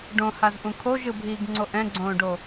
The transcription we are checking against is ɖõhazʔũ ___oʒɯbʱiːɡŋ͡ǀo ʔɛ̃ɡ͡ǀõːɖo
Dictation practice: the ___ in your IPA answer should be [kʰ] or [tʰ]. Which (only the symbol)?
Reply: kʰ